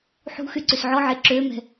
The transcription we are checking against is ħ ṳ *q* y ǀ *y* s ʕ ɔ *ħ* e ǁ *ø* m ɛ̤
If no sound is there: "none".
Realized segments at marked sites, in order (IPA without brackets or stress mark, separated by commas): x, y, ʕ, ø